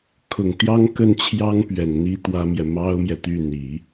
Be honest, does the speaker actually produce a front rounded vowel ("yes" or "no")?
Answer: yes